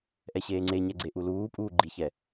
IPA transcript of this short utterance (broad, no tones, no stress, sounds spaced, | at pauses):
ʔ ɛ ɕ eː ŋ͡ǀ e ɲ ɛ ɡ͡ǀ e ʔ u l uː pʼ uː ɡ͡ǃ i ç ɛ